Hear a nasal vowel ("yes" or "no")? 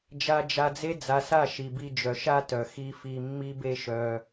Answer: no